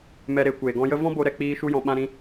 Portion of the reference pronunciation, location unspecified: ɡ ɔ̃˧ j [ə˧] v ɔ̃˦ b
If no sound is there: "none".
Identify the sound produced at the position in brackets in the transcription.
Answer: ə˦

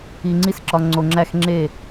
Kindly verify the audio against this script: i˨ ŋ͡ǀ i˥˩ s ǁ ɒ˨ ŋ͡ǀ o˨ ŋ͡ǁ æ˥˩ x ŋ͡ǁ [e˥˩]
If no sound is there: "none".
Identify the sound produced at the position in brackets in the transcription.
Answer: e˥˩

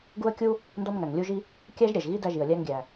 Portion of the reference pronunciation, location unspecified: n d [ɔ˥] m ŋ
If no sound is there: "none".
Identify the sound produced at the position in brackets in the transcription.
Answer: ɔ˥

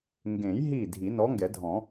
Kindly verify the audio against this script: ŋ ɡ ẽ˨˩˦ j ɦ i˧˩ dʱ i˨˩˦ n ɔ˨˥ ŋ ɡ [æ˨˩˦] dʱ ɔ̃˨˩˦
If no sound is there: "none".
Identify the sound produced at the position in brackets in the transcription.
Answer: ɛ˨˩˦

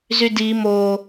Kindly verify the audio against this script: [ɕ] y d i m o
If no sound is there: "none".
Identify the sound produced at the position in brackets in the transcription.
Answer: z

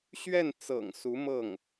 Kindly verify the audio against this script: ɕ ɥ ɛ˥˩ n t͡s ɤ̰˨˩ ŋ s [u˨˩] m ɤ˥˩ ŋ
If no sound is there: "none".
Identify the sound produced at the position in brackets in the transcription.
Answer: u˧˥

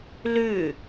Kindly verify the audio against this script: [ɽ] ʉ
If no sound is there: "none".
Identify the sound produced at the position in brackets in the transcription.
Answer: l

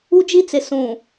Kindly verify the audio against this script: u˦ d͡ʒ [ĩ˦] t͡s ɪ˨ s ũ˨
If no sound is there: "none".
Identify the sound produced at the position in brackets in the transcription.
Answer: i˦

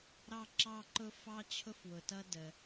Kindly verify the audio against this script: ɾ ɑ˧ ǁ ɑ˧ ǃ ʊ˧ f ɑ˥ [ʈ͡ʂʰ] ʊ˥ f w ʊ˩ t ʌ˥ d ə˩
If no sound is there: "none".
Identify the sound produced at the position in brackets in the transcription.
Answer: t͡ɕʰ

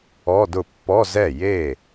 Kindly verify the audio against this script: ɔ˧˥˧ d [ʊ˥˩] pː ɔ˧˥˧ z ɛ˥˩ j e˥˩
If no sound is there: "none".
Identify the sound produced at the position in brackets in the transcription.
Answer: ʊ˥˩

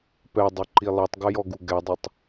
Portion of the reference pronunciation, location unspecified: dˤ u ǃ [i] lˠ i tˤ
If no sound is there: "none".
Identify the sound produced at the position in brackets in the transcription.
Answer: i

